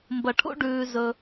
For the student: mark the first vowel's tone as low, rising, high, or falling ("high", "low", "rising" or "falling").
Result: low